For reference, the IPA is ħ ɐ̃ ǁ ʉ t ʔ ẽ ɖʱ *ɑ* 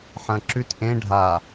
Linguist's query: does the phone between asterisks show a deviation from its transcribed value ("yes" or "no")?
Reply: yes